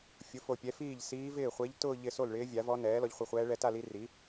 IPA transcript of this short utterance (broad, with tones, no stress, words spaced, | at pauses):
fʲʊ˩˥fo˨pʲɛ˩˥ fiː˥˩ʎsiː˧˥ vɪː˥˩χʷe˧˥ʎ tʊː˥˧ ʎɪ˥˧ so˥˩lɭɪː˧˥vʲa˩˥vɔ˧˥ nɛː˩˥lɔ˩˥ʎχʷi˨χʷɛː˧˥ ɭɛ˧˥ta˥˧li˧˥ ri˩˥